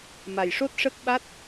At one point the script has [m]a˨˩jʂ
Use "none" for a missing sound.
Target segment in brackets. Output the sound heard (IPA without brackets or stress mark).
m